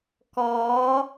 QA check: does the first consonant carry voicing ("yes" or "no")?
no